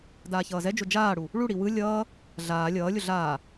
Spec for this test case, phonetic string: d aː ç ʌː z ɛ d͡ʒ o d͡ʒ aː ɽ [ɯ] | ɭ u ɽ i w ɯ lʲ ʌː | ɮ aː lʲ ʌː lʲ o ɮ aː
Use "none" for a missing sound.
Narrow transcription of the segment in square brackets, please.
u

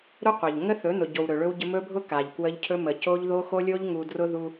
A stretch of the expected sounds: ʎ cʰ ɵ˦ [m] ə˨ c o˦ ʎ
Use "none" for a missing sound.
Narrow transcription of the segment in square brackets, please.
m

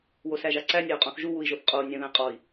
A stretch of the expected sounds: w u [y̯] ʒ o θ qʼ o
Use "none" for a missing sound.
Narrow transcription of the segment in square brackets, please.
i̯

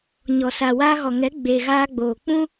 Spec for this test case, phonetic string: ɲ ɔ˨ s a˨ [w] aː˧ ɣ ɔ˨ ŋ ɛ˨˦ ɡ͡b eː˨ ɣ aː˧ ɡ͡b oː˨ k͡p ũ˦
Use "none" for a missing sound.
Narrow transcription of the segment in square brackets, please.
w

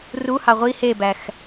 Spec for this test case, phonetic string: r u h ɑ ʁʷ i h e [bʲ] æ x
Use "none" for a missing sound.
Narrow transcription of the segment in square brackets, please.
b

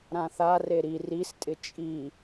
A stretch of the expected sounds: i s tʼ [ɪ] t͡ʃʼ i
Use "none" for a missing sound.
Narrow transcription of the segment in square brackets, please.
ɪ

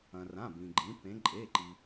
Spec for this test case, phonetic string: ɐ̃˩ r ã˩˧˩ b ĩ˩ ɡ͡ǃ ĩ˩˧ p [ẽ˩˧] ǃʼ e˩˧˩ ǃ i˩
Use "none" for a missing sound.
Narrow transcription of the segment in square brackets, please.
ẽ˩˧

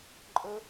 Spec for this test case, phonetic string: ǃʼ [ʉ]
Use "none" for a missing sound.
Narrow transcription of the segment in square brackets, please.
ə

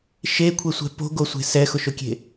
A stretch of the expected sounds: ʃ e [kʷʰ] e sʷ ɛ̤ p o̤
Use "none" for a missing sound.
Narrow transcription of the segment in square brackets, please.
kʷʰ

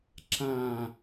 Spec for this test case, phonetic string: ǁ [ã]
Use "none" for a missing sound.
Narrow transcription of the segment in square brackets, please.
ã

